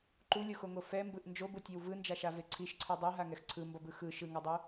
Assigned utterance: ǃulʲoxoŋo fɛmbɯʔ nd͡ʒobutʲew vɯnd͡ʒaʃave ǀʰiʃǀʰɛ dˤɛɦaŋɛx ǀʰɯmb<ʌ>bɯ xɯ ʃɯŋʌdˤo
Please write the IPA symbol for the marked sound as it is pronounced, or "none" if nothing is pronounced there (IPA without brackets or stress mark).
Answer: ʌ